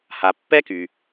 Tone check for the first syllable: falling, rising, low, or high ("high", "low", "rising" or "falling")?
low